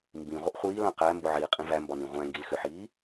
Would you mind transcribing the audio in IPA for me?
m b ĩ ʁʷ ə ʔ χʷ iː l ã q æ m b ʊ ʕ iː qʼ ĩ v æ m b ɒ n ĩ ʁʷ æ̃ ŋ ɡ i l x ʏ ħ iː

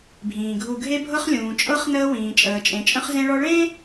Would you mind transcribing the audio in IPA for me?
bʱ ĩː˩ ɡʱ u˨ ɡʱ e˦ bʱ ɤ˦ χ lʲ ũː˩ t͡ʃʼ ɤ˦ χ n əː˦ w ĩː˩ t͡ʃʼ əː˩ t͡ʃʼ ẽ˩ t͡ʃʼ ə̃˦ χ z ẽ˦ ɭ ɔ˦ ɭ ẽ˥

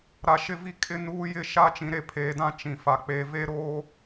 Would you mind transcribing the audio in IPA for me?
ɾ a˨ ʃ ɪ˦˨ v i˦˨ kʼ ɪ˦ n uː˦ j ɪ˦˨ ʃ a˦ t͡ʃ ĩ˨ ɾ e˦˨ pʰ eː˨ d ã˦ t͡ʃ ĩ˨ f a˨ k͡p eː˨ v e˦ ɾ oː˦

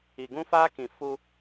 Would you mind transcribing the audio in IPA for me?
i˨ ɡ ũ˦ f aː˦ k ĩ˨ f u˦

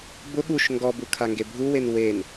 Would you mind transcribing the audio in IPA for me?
b ʊ ɠ u ʃ ŋ ɡ ɔ b u kʰ a ŋ ɡ e bʱ u w e n w e n

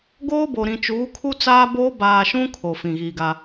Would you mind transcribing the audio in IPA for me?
ɡ oː˦ b o˨ ɾ ĩ˨ t͡ʃ uː˨˦ kʰ u˦ t͡s aː˦ b oː˦ b aː˨ ʃ ũ˦ kʰ o˨ f ĩ˨ ɣ iː˨ ɡ a˦

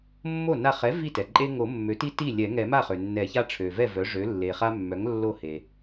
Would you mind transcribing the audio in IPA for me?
mː o˥˩ n a˥˩ χ ɛ˩˥ v i˥˩ t ɛ˩ ǃʼ e˦ ŋ o˨˩˦ mː ø˩˥ t i˦ t i˥˩ lʲ ɛ˨˩˦ ŋ ɛ˨˩˦ m a˥˩ χ ø˩ nː ɛ˨˩˦ ç a˦ ʈ͡ʂʰ ø˩ v ɛ˥˩ v œ˩˥ ʐ ø˩˥ lː e˩ χ a˦ mː œ˩˥ ŋ lː o˥˩ h e˩

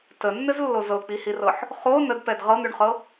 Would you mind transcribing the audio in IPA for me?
t ə nː ɘ z lː o z ɤ k͡p i h i r ɤ ħ | χ o n ə d p ɛ d ʁ ɤ n̪ ʉ ɳ χ ɤ

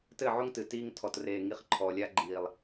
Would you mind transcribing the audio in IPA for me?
t ɘ˦˨ ʕ o˦ ŋ t ɨ˨ t iː˦ ŋ tʰ ɔ˨ t r eː˨ ŋ i˨˦ χ ǃʰ ɔː˨ lʲ a˦ ɡ͡ǃ iː˨ lˠ

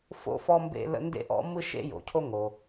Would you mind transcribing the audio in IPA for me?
f o̰˥ f ɔ˥ m b ḛ˥ l ə̰˥ n d ḛ˥ ʔ ɔ̰˥ m ɯ˥ ʃ ḛ˥ j o̰˩ cʰ o˥ ŋ o˩

